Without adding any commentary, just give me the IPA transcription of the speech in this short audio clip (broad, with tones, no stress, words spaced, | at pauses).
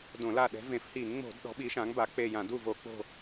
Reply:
dõ˧˩˧la˦˨ ɗɛ̤˨˥vẽ˧˩˧f hi˧˩˧ŋŋ͡mo̤˧˩˧d ɗɔ̤˨˥ɓi˨˥ʃã˨˥ŋba˨˥ k͡pe˦˨ jã˧˩˧ du˦˨vo˧˩˧ k͡po̤˦˨